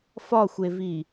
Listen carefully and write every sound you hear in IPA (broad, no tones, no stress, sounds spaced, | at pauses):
f ɒ xʷ e v i